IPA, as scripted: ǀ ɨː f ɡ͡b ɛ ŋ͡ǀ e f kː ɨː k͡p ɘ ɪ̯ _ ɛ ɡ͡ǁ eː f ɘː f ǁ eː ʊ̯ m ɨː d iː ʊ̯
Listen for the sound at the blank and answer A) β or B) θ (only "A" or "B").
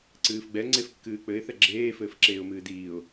B